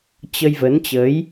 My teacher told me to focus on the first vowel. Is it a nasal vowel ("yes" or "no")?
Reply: no